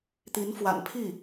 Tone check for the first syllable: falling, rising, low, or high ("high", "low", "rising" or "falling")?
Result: rising